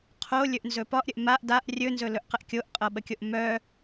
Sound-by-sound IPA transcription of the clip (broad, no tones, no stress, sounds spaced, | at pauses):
qʰ o lʲ ɵ ʔ n z ɵ p ɒ ʔ ɾʲ ə ʔ m a ʔ d a ʔ rʲ ɵ n z ɵ l ɵ ʔ q ə ʔ kʲ o ʔ qʼ ɤ ɓ ə kʲ o ʔ m œ